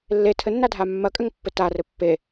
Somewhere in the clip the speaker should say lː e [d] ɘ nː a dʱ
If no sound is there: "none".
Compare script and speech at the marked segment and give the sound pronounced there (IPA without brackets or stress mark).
tʰ